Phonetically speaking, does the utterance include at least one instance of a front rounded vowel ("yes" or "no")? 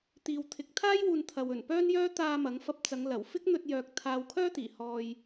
yes